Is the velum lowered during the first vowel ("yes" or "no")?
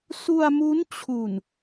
no